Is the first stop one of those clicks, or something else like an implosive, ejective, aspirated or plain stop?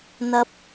plain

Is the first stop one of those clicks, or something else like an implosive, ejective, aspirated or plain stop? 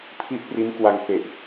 aspirated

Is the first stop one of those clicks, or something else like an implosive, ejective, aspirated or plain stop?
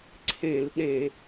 click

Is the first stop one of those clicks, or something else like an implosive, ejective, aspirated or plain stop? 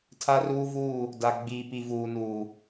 aspirated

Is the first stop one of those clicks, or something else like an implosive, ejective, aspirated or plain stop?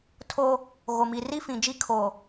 aspirated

